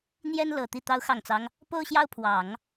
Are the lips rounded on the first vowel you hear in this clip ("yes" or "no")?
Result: no